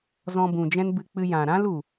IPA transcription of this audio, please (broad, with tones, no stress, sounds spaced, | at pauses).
z ɔ̃˧ b ũ˨ d͡ʒ ɛ̃˦ n b ɨ˧ k͡p ɨ˧ j ã˨ ɾ ã˦ l u˨